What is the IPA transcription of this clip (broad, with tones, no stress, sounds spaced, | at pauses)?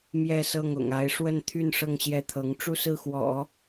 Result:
m j ɛ˥˧ s ɤ˥˩ ŋ ʊ̰˨˩ ŋ a˧˥ ɪ̯ ʂ w ə˥˧ n t̪ʰ y˥˧ n ʂ ɤ˥˧ ŋ ɕ j ɛ˥˩ t̪ʰ ɤ˧˥ ŋ ʈ͡ʂ u˥˧ s ɹ̩˥˩ x w ɔ̰˨˩˦